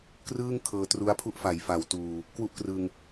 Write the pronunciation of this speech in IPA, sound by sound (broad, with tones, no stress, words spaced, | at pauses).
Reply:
krɯː˥˩ŋ kʰɤː˧tru˦˥a̯pʰu˥˩ʔfa˩˦j fa˩˦wtuː˨˩ | kwu˥˩ʔkrɯ˧ŋ